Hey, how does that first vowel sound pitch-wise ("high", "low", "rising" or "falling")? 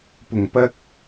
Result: low